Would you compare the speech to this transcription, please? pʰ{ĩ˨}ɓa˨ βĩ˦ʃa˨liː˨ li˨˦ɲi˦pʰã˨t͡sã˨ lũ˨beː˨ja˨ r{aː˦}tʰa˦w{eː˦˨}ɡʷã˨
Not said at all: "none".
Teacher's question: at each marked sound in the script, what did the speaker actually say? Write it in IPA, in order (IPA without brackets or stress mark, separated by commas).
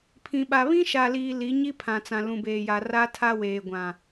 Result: ĩ˨, a˦, eː˨